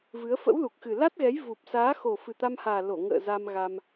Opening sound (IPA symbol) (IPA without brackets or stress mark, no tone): v